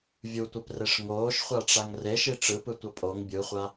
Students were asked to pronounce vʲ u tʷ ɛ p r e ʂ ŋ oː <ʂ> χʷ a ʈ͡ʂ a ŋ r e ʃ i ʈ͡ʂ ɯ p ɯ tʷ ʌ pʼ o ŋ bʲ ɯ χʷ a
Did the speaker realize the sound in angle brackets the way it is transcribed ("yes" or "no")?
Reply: no